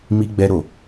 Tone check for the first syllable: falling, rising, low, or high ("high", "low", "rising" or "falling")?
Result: high